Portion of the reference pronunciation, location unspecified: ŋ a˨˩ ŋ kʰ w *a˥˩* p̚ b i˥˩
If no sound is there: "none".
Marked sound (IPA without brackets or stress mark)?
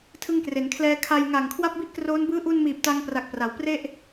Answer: a˥˩